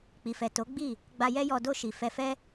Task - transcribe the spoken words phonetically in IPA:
k͡p i˨ f ɛ˨ t o˨˦ ɡ͡b i˦˨ | ɡ͡b a˧ j ɛ˦ j ɔ˧ d o˧ ʃ i˨ f ɛ˧ f ɛ˦

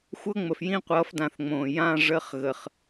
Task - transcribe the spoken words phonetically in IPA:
xʷ ɤ˧˥ ŋ͡m ə˨˩ f j ĩ˦˨ qʷ ʌː˩˥ f d ã˨˩ θ ŋ͡m õː˨˩ j ã˧˥˧ ʐ ə˧˥˧ χ ɣ ə˨˩ χ

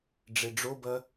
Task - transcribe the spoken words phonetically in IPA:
ɖ͡ʐ e ɖ͡ʐ o b ɐ

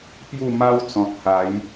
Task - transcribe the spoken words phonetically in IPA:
p j u˥˧ m a˦ w t͡s ɔ̃˨ t̚ h a˨˦ j

